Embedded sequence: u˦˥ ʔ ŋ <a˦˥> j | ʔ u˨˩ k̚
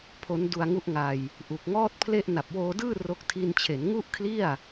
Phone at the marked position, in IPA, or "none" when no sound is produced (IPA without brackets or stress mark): a˧